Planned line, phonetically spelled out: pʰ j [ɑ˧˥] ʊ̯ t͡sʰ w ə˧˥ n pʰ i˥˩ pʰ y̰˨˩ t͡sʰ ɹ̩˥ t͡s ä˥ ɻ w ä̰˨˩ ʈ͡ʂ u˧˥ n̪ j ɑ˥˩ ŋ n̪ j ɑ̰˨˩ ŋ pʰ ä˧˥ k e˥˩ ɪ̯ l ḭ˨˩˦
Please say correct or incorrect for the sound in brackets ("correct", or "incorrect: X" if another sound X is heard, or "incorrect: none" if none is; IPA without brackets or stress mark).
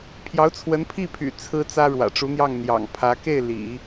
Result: correct